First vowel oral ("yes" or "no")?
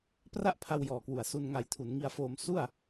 yes